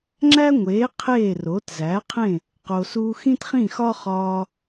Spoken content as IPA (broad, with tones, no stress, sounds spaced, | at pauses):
ŋ͡ǁ æ˥ ŋʷ eː˩˥ qʰ eː˥˩ r o˩˥ t z æː˩˥ qʰ ẽ˥˩ | q o˩ s uː˧ x ĩ˥ t χ ĩ˥˩ x ɒ˥ χ ɒː˧